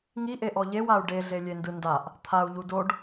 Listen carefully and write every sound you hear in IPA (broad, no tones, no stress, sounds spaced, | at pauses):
ŋ i ʔ e ʔ ɔ ʎ e w a u̯ ɖ e ɮ e lʲ e n d ɯ n d a ʔ | t̪ʰ a u̯ ʎ u d o ɖ